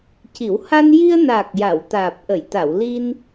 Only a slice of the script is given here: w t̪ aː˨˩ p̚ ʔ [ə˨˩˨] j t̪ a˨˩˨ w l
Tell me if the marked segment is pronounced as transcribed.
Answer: yes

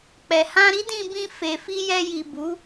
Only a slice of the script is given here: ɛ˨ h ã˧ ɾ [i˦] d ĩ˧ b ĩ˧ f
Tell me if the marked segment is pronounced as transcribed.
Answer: yes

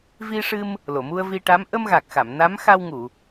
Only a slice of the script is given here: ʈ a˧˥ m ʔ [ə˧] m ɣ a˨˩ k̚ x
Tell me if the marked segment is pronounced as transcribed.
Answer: yes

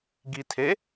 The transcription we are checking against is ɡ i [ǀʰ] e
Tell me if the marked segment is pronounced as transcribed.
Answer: no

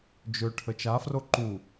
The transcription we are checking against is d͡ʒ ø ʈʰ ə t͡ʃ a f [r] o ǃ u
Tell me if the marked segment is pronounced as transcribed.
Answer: yes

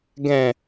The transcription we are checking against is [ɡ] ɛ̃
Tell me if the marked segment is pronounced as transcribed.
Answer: yes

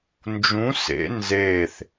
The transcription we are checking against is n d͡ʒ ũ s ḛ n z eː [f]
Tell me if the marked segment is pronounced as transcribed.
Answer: no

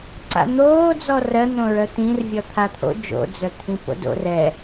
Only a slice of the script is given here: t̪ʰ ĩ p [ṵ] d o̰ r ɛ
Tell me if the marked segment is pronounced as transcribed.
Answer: no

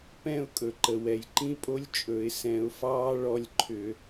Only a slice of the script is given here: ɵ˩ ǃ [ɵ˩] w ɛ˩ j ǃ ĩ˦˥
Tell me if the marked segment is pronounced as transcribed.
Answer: no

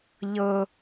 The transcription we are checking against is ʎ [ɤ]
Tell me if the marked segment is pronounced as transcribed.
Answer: yes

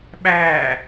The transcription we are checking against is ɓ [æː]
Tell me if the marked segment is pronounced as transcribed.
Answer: yes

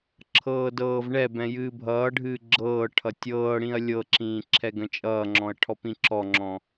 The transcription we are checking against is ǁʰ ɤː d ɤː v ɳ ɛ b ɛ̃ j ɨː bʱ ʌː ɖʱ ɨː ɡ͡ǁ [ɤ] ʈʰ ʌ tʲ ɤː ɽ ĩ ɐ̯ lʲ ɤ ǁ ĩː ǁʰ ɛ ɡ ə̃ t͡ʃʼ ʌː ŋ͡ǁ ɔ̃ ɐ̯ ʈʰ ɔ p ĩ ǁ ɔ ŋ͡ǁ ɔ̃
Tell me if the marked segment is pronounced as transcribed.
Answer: no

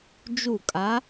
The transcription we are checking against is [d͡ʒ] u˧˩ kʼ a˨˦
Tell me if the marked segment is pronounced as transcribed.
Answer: yes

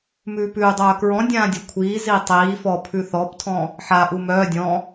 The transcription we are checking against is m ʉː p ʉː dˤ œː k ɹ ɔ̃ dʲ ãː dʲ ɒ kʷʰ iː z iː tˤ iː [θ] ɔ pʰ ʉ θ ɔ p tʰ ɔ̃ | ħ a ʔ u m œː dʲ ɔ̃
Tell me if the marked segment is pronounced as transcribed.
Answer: no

